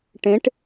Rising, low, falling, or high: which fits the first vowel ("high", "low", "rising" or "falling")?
rising